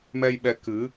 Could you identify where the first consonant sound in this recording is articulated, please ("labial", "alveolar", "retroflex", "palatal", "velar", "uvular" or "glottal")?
labial